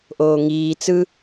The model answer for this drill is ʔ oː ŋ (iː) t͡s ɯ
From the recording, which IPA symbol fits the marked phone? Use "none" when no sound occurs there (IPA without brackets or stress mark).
iː